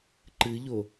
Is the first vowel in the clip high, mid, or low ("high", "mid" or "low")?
high